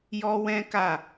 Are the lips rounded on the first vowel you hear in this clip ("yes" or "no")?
yes